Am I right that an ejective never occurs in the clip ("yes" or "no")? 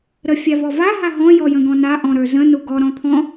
yes